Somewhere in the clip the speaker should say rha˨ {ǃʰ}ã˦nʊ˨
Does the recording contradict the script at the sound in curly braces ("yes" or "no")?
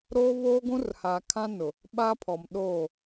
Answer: yes